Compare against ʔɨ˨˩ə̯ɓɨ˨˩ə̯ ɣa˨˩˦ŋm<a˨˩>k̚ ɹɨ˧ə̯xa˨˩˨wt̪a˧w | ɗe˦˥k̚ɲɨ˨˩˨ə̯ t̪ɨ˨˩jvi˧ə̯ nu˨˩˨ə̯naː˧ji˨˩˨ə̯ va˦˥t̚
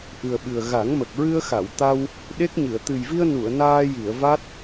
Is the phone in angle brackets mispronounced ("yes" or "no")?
yes